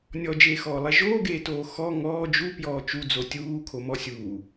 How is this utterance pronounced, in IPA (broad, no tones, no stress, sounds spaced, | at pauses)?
nʲ ɔ d͡ʒ eː x ɔː lˠ ɛ ʒ oː ɡ eː t oː x ɔ ŋ ɔː d͡ʒ u p j ɔː t͡ʃ u d͡z o tʲ uː kʰ o m ɔ sʲ uː